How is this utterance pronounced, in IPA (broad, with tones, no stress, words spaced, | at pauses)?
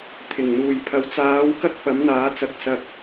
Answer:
t̪ʰɪ˨˩ŋ n̪uː˨˩jpʰɐ˨˧w t͡saː˨˥wkɐ˥k̚ pɐ˨˥mn̪aː˨˥ t͡sɐ˨˥k̚sɐ˧k̚